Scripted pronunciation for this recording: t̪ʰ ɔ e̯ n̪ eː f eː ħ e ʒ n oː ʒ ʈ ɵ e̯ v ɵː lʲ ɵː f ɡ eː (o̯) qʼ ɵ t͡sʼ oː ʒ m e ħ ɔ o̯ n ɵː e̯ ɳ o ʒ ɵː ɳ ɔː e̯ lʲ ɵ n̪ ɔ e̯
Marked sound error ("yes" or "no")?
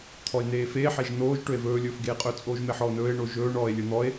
yes